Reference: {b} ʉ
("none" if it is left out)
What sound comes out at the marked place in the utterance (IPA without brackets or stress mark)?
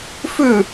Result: f